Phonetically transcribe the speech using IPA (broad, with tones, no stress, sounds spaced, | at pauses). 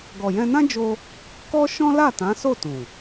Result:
ɡ ɔ˨ j ɛ̃˧ n ã˦ d͡ʒ o˧ | k ɔ˦ ʃ ɔ̃˦ l a˦˨ t ã˨˦ s o˦˨ t ũ˨